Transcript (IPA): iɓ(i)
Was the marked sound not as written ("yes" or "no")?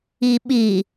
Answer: no